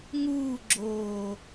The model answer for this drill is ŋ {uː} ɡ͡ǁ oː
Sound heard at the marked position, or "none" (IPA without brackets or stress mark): uː